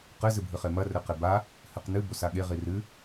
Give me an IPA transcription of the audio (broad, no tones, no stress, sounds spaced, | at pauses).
q ɘ z ɨ bʱ ɨ χ e m ɐ r ɘ q e b a | h ɨ q n ɨ b o s a ɠ e ʁ i r ɨ